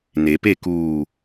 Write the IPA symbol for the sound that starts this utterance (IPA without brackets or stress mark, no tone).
n